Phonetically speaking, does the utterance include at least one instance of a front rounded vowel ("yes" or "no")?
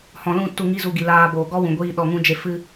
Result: no